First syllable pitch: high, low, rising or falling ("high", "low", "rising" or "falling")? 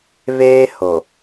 high